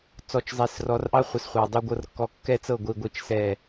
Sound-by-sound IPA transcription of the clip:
t͡s ɔ˨ t͡ʃ zˤ e˨ s r ɔ˨˦ r ʔ ɑ˦ χʷ ɘ˨ s χʷ ɑ˨ dˤ u˦ ɡʷ ɤ˦ r kː ɔ˦ kː ɛ˦ t͡s ɤ˦˨ ɡʷ i˨ ɡʷ i˨ t͡ʃ s ɛ˦˨

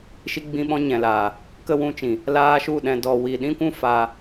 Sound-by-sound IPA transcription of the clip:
ʃ i˧ ɡ͡b ĩ˧ ɓ ɔ̃˧ ɲ ɛ̃˨ l aː˨ | k ə˦ w ũ˧ t͡ʃ ĩ˨ | l aː˦ ʃ u˦˨ ɗ ɛ̃˧ d ɔ˧ w i˧ ɗ ĩ˦ kʷ ũ˦ f aː˧

